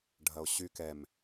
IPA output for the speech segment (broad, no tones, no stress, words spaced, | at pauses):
ɖʱɐo̯ɕy kɛm